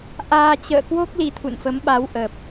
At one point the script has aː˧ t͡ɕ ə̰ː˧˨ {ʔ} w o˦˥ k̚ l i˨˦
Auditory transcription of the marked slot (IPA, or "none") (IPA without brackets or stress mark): k